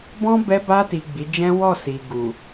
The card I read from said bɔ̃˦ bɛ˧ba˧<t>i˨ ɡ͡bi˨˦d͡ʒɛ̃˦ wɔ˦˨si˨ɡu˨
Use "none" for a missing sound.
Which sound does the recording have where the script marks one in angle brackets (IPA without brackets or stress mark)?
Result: t